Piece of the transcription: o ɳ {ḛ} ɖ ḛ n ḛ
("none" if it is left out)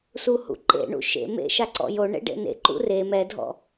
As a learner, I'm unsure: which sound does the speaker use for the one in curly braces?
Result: ḛ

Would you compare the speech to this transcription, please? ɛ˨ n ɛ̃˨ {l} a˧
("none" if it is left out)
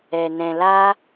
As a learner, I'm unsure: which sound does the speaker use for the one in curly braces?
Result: l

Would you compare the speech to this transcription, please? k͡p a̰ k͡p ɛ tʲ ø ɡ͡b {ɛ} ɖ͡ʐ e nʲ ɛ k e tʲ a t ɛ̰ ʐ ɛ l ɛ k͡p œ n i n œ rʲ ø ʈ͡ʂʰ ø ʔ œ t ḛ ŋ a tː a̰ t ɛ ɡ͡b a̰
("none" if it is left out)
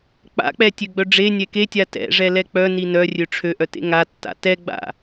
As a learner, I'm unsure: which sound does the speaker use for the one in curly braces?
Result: œ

